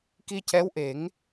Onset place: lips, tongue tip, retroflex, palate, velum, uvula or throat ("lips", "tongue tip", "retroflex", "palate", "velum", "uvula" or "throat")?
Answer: velum